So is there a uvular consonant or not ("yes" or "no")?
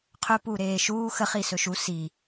yes